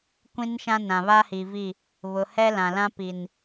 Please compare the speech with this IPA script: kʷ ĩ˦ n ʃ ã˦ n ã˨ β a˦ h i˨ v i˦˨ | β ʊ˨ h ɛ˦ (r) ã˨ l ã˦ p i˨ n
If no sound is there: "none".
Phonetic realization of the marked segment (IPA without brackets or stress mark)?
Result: l